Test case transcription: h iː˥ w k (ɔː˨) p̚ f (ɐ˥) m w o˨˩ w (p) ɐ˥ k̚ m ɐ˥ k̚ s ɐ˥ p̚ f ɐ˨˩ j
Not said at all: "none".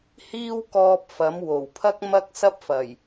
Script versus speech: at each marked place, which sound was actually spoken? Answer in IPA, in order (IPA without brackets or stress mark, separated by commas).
ɔː˧, ɐ˨˥, pʰ